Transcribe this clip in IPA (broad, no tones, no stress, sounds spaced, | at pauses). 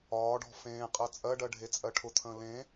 ɒː ɖ ɔ̤ f ẽː qʼ ɜ t͡sʼ ɜ ɖ ɜ ɖʱ e t͡sʼ ɜ ʈʰ ʊ t̪ʰ ə̃ː l ẽ